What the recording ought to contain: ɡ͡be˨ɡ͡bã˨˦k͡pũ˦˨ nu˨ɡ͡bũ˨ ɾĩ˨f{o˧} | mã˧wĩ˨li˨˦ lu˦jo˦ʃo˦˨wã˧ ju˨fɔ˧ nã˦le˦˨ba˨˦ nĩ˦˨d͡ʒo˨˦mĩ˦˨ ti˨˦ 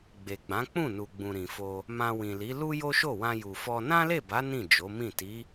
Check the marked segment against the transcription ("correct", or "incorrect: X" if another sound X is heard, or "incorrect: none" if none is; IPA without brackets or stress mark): correct